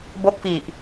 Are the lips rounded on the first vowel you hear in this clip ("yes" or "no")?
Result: yes